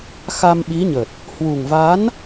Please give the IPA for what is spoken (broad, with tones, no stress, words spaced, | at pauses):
xa˧mɓi˨˦ɲə˨˩t̚ | hwu˨˩ŋva˨˦n